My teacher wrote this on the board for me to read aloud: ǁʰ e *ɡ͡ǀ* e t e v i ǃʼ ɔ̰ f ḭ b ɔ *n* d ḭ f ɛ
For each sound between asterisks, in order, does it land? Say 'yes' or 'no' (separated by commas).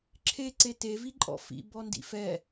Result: no, yes